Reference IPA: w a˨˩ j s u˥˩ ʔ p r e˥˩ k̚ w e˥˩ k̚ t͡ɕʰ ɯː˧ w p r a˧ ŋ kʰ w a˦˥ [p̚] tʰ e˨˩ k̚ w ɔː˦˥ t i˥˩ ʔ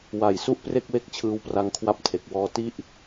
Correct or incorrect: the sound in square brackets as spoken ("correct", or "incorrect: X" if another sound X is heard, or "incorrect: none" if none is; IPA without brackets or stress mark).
correct